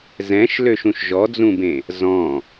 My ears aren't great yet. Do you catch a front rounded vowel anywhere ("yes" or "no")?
yes